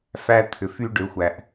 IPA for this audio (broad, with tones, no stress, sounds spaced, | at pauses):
f æ˦ t̪ʰ ʏ˨ f y˦ ɖ ʏ˨˦ xʷ æ˨ ʔ